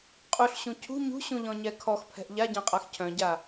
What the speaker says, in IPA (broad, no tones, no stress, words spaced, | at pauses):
qʼuɬɕũ cʰṳ ɲṳɕũʎɔ̃ɲɛ kʰɔxpʰɛ̤ʔ ʎaɟãqʼax cʰœ̃ɟa